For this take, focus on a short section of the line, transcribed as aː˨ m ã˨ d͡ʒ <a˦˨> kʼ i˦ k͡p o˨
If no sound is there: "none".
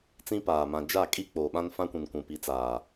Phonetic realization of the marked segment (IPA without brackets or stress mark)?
a˦˨